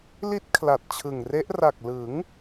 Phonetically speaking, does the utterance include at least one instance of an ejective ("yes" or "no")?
no